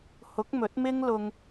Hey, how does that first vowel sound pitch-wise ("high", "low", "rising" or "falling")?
rising